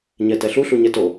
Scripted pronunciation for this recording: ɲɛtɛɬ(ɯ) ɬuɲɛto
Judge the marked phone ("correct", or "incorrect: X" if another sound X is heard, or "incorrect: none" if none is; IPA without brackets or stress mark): incorrect: u